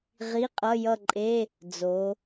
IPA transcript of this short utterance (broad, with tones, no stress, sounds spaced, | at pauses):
ʁ i˧˥˧ qʼ ʌ˧˥˧ j ʌ˥˧ ǃʼ e˧˥˧ | d͡z o˩˧